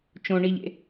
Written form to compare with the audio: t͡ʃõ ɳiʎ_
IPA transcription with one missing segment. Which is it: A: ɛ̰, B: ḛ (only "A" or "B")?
B